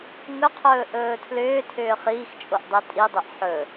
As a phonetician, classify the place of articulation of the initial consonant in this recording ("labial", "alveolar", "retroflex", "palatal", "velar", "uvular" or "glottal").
velar